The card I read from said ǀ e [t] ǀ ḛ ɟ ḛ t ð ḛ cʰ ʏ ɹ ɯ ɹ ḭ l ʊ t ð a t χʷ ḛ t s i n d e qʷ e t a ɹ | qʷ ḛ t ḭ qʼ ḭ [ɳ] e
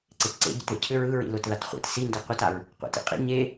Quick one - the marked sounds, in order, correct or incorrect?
correct, incorrect

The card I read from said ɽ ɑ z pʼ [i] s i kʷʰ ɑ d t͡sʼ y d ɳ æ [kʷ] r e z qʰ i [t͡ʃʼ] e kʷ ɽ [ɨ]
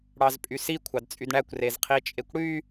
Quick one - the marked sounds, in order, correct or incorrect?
incorrect, correct, correct, incorrect

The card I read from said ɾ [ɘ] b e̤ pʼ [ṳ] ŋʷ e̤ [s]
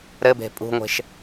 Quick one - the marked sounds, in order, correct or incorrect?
correct, correct, incorrect

